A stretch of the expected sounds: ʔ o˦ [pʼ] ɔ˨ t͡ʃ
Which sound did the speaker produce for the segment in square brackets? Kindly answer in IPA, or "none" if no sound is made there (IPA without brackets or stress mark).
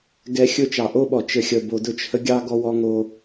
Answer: ɓ